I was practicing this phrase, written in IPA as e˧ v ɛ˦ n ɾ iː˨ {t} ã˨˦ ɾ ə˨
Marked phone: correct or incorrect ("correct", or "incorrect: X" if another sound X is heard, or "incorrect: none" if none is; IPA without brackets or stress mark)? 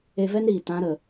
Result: correct